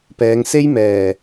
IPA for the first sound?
p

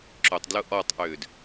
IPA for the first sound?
ǁ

